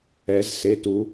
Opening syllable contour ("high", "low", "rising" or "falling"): rising